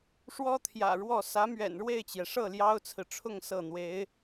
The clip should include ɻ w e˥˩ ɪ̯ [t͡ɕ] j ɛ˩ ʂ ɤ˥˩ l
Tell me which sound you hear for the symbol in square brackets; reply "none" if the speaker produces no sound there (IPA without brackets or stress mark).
t͡ɕ